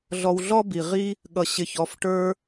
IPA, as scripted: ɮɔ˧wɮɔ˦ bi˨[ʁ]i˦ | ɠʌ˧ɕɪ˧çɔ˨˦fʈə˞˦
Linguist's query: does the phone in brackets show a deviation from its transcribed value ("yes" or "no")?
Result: no